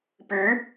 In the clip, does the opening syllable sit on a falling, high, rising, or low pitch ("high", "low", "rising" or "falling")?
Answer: rising